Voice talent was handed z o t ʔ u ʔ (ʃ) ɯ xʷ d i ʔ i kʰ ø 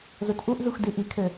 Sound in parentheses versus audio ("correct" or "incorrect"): incorrect